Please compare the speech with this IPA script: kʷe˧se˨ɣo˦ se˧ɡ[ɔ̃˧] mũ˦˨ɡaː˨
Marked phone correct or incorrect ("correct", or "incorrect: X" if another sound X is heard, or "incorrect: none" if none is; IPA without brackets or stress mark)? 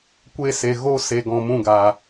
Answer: correct